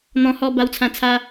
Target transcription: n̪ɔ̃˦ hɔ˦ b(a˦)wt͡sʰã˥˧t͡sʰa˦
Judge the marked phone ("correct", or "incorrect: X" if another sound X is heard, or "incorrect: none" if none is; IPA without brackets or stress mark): correct